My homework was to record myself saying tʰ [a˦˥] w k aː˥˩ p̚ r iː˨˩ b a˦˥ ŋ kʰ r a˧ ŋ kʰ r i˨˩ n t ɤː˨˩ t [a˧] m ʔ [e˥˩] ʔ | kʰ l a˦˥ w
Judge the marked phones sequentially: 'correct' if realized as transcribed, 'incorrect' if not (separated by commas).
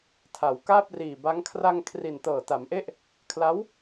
incorrect, incorrect, correct